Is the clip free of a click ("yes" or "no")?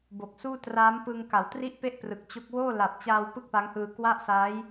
yes